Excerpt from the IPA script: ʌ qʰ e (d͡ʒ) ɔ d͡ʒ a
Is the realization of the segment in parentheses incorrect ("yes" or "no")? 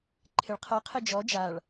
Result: no